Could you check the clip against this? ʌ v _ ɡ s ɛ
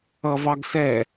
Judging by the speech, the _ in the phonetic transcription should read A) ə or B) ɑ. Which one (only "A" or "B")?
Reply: B